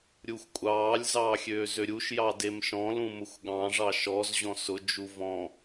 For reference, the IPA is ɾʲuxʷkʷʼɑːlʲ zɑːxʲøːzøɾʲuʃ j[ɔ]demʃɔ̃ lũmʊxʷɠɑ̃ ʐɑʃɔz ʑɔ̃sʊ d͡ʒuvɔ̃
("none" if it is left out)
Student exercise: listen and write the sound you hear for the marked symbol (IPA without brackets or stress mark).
ɑ